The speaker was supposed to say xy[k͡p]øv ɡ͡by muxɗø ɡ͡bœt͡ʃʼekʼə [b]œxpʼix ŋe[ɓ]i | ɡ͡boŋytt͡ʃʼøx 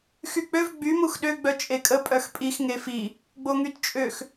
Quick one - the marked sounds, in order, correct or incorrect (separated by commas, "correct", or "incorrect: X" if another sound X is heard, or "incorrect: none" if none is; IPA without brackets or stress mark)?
correct, incorrect: pʼ, incorrect: f